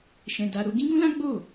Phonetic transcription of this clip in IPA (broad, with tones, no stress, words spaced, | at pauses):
ʃɛ̃˧ da˧ɾo˦ ɡĩ˦ɡũ˦lã˦ ɡ͡bo˦˨